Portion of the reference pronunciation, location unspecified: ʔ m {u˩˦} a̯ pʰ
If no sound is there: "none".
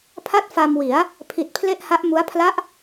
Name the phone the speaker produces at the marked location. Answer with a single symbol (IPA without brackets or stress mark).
u˦˥